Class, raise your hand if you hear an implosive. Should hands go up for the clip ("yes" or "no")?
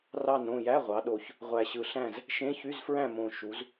yes